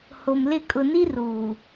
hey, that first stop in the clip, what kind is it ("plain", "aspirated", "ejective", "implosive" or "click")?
ejective